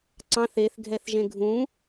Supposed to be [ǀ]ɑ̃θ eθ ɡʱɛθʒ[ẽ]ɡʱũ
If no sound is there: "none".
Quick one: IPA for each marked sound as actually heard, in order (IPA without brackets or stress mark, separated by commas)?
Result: ǀ, ẽ